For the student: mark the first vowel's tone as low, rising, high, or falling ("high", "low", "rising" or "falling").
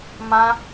high